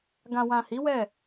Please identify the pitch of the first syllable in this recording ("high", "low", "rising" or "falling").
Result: low